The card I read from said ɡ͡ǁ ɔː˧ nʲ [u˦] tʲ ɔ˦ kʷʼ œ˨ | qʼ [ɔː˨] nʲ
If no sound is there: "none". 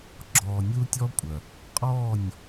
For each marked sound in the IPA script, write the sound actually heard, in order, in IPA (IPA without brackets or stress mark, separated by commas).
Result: u˦, ɔː˦˨